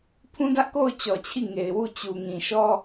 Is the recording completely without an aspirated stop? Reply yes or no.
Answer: no